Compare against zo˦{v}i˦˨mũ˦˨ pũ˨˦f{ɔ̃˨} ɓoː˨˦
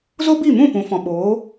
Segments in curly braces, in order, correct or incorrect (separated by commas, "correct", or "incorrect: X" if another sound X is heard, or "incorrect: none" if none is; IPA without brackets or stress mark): incorrect: b, correct